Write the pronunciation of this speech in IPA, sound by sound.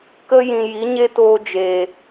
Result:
k ə˧ j ĩ˨ j i˨˦ ɲ e˦ t oː˧ d͡ʒ eː˨

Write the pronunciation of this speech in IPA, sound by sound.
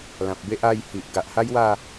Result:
l ã˨ p̚ b e˦ ʔ a˥˧ j h i˨ ʔ ɡ a˨ ʔ h a˦ j w a˥˧

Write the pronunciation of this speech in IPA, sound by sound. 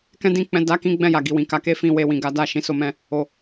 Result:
k ɛ̃˦ d ĩ˧ k͡p ɛ̃˧ d a˦ k ĩ˦ ɡ͡b ɛ̃˦˨ j a˨ ɡ i˨ w ĩ˨ k a˨˦ k e˦ f ĩ˧ w e˦ w ĩ˧ ɡ a˦ d a˦˨ ʃ ĩ˧ s o˧ m ɛ̃˧ | o˨

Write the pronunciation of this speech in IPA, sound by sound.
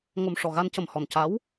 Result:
ŋ o˨˩ m ʂ ɔ˨˩ ɣ a˧ n c ə˨˩ m h ɔ˨˩ n c a˧˥ w

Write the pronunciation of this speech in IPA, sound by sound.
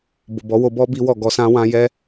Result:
b o˨ b ɔ˨˦ w o˧ b ɔ˦ b i˦ w ɔ˦˨ ɡ ɔ˧ s ã˦ w ã˦ j ɛ˦

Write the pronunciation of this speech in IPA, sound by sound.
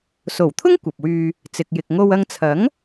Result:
s o˨˩ w t̪ʰ ʊ˥ ŋ kʷ ɐ˨ p̚ w yː˧ | t͡s ɪ˨ k̚ j ɪ˨ k̚ ŋ o˧ w ɐ˧ ŋ t͡sʰ ɐ˨˥ ŋ

